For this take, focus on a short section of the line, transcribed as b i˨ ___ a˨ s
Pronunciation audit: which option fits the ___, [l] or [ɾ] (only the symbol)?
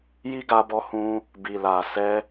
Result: l